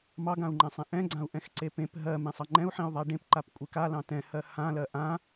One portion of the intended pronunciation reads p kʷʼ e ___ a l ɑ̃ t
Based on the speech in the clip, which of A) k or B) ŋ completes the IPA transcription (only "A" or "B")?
A